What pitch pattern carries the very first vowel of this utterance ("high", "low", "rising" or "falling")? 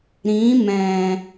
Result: rising